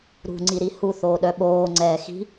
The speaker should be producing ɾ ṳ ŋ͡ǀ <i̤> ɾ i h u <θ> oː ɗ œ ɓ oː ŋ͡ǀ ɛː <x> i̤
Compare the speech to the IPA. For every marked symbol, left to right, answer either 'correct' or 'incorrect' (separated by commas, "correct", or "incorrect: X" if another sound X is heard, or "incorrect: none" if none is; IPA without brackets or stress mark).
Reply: incorrect: i, correct, correct